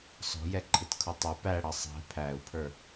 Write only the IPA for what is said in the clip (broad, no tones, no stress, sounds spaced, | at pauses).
s ɔ̤ j ɛ ǃʰ ɪ t kʰ ʊ tˤ ʊ p æ ɽ ʌ sˤ ɛ̤ pʰ æ u̯ pʰ ə˞